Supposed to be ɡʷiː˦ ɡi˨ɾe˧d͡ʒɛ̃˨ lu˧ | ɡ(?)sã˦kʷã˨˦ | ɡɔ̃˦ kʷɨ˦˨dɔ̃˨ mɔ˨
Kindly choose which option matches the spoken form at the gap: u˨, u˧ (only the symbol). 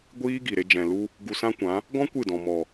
u˧